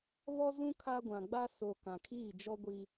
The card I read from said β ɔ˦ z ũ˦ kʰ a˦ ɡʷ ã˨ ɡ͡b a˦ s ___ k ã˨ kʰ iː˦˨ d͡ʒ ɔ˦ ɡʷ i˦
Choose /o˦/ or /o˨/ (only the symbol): o˨